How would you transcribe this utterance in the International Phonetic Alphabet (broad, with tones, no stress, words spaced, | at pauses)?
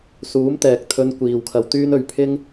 suː˨˥mt̪ɛː˨k̚t̪ʰɵ˧n kʷiː˨wkʰɐ˧wt̪yː˥nɵ˧ɥ pʰɪ˥ŋ